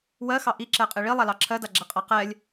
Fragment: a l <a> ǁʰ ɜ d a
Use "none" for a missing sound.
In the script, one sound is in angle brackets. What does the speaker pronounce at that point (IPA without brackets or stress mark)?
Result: ɑ